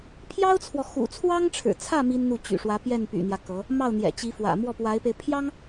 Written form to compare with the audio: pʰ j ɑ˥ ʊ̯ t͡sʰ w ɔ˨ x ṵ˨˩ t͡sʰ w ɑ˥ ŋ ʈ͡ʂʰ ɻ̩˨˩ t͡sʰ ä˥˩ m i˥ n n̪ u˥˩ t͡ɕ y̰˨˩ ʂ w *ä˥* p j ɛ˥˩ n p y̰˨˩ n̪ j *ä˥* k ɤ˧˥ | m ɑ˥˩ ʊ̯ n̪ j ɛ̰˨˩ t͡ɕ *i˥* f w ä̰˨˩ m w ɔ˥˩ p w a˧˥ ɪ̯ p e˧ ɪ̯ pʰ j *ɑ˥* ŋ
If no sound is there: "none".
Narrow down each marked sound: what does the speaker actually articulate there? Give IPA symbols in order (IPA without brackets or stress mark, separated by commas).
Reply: ä˧˥, ä˦, i˧˥, ɑ˥